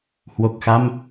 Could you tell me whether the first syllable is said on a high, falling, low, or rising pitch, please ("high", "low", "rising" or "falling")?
low